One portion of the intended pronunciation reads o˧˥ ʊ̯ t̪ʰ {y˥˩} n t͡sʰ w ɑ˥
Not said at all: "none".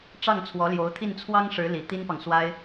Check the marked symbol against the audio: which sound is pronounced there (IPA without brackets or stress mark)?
i˥˩